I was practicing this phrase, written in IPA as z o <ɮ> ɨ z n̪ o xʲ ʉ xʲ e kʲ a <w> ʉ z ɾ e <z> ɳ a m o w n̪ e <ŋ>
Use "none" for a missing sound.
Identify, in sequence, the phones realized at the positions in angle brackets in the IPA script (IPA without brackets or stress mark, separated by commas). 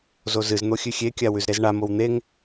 z, w, z, ŋ